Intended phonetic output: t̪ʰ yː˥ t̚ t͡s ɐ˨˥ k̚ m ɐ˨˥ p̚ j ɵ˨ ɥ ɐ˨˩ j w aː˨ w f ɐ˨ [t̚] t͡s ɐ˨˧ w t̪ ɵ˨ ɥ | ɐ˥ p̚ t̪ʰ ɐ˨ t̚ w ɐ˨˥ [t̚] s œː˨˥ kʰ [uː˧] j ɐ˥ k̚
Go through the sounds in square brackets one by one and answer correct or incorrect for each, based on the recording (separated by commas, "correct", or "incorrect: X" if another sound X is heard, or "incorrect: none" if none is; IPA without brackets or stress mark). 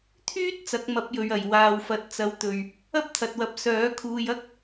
correct, incorrect: p̚, correct